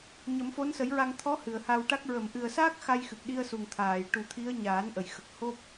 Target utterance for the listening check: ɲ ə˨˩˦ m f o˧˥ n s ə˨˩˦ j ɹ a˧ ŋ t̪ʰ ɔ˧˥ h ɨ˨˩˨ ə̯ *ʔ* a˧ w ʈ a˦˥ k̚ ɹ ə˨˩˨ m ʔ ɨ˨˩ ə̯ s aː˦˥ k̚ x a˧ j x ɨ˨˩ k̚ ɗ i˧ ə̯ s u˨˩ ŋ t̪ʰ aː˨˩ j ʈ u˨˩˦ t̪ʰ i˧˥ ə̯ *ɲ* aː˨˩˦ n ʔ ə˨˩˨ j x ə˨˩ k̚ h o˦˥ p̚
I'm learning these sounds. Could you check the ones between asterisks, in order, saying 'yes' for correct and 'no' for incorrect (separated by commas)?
no, yes